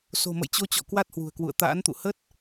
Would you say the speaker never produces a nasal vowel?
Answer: yes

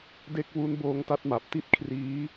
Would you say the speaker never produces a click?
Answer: yes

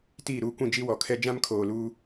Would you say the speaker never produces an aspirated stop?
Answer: no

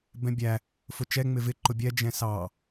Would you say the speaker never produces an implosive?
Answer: yes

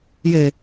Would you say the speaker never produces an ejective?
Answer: yes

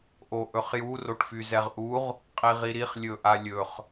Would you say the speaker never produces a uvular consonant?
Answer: no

